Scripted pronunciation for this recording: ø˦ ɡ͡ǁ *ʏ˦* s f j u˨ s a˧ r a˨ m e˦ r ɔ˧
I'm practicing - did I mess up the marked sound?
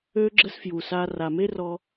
yes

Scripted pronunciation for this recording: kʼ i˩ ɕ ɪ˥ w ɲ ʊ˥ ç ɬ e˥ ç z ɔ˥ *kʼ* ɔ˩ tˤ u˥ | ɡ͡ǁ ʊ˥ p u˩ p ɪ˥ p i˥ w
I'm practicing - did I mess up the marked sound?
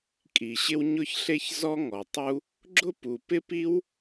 yes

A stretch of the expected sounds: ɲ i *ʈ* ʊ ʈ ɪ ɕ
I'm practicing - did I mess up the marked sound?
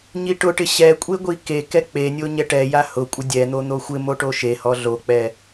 no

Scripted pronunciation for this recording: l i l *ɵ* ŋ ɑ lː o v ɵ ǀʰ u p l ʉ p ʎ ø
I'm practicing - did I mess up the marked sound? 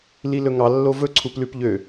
no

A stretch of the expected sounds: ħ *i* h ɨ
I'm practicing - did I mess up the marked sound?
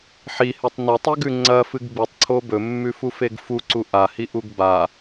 no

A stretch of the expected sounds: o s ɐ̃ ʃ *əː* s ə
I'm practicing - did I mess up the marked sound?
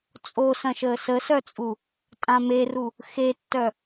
no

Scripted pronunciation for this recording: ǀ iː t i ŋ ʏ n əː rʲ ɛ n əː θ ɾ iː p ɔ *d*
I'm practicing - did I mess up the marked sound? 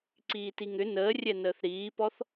yes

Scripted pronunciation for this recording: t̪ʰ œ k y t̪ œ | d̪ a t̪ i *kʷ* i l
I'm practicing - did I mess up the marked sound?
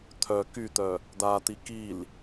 yes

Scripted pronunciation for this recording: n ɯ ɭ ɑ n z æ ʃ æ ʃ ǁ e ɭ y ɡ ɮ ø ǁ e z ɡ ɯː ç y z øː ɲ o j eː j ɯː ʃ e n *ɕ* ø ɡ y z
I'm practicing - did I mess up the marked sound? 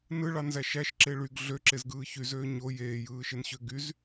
no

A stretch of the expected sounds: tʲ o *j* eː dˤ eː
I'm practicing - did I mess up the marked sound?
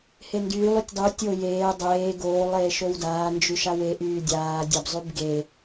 no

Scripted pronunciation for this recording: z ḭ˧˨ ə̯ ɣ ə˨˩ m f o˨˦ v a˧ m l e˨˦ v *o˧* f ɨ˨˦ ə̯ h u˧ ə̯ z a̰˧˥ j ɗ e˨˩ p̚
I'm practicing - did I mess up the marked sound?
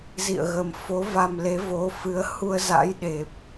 yes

